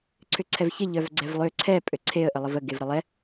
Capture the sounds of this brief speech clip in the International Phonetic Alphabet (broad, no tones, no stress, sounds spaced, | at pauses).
ǀʰ ʏ ǀʰ ɛ v ç ɪ ʎ œ v ɡ͡ǀ ɛ v lˠ ø ǀʰ ɛ pʼ ø ǀʰ e ə̯ ʔ ə lˠ ə v ə ɡ e v ɾ ə lˠ ɛ